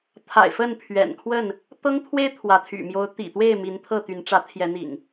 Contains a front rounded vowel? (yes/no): yes